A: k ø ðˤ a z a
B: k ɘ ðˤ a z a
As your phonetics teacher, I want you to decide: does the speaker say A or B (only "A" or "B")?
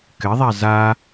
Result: B